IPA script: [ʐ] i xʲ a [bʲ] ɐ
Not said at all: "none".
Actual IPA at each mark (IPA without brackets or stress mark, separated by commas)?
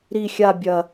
ɾ, bʲ